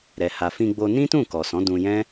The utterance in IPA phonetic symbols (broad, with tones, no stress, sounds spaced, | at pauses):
ɾ ɛ˧ h a˧ f ĩ˧ ɡ͡b o˧ n ĩ˦ t ũ˦˨ k ɔ˨ s ɔ̃˨˦ d ũ˧ j ɛ̃˦